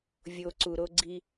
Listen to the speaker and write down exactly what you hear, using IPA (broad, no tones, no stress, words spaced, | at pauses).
vʲoǀuɾoɡ͡ǀi